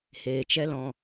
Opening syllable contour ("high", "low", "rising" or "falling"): low